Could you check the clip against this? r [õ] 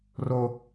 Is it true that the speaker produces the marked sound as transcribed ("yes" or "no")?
no